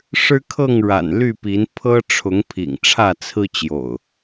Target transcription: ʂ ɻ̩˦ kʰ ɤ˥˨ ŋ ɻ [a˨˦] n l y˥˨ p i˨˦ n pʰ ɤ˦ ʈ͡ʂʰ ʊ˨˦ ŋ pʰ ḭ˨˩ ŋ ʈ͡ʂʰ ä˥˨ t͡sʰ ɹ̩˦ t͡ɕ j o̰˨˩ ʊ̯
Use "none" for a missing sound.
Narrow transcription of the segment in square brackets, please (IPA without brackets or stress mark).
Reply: a̰˨˩